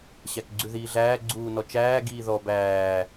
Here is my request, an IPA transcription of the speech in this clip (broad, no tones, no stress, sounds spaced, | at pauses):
ɕ æ k ɡ͡ǀ ʉ ð iː ɮ æː ɡ͡ǀ uː n ɔ t͡ʃ æː ɡ iː ð ɔ b æː